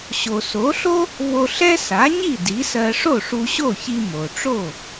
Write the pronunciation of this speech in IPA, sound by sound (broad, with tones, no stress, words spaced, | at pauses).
ɕo˩so˩˥ɬo˥ | vo˧ɬɛ˥ sa˩˥ɲi˥˩ di˩˥sɜ˧ ʂo˥˩ʂu˧ɕo˥˩çi˧ mo˩ʈ͡ʂo˥˩